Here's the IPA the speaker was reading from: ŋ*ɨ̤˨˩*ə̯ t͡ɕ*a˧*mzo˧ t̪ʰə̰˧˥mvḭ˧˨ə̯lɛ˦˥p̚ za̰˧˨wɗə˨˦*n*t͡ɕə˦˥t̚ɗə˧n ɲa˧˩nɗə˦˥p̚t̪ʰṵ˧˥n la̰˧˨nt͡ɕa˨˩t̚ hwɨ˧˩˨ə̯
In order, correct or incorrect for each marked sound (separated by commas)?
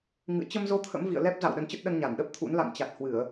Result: incorrect, incorrect, correct